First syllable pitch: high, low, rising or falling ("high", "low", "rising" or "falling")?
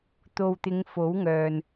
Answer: low